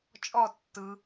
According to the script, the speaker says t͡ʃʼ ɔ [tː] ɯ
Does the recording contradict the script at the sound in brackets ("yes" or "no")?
no